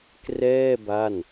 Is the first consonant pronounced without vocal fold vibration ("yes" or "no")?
yes